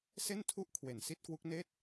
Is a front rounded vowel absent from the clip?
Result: yes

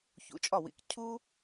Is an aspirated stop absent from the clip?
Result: no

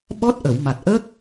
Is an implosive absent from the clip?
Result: no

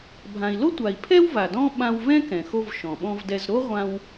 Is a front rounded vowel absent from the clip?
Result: yes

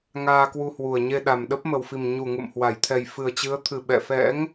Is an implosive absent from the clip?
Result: no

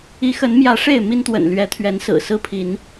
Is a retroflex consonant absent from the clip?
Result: no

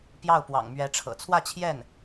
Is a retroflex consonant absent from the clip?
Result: no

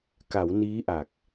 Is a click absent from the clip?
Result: yes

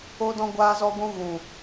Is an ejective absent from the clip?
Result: yes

